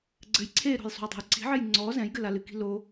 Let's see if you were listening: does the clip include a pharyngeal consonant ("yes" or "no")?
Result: yes